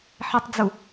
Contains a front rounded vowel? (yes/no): no